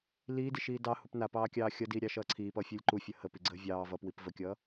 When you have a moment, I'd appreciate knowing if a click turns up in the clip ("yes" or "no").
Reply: yes